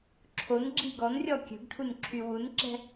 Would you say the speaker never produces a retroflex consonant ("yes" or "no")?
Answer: no